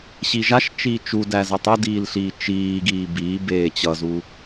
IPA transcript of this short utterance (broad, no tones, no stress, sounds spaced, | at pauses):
ɕ i ʒ a ʃ t͡ʃ iː t͡ʃ u d æ z ʌ tˤ ʌ d iː l ɬ iː t͡ʃ iː ɡ iː b iː b eː t͡ɕ ʌ z u